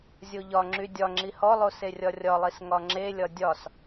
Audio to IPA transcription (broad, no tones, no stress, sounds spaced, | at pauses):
zʲ o ʎ ɒ ŋ͡ǁ y dʲ ɒ ŋ͡ǁ i h ɔ lˠ o s e rʲ ɒ rʲ ɒ lˠ i s ŋ ɒ ŋ͡ǁ e lʲ ɒ dʲ ɒ s